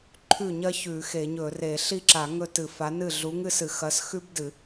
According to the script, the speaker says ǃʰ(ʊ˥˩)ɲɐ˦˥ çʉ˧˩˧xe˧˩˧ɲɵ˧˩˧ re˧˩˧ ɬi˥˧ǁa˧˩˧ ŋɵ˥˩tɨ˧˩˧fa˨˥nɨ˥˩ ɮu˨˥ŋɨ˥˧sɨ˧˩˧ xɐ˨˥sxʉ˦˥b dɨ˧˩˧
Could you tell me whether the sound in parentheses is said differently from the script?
yes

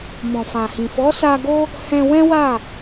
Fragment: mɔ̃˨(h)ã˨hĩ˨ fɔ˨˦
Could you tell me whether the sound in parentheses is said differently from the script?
yes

